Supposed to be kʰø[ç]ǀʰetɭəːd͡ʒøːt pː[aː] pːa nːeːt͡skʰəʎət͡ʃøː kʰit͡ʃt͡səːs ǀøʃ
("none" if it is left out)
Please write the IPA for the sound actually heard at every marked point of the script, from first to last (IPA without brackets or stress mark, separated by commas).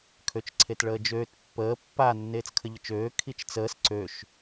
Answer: t͡ʃ, əː